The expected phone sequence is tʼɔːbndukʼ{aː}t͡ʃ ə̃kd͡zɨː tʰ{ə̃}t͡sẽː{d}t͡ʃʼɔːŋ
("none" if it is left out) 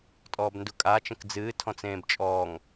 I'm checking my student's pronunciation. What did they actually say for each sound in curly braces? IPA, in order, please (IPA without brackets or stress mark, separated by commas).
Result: aː, ɔ̃, b